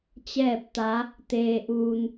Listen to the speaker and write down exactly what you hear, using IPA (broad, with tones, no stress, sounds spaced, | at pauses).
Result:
t͡ɕ ɛː˥˨ p̚ t̪ a˧˥ | t̪ eː˧ ʔ uː˧ n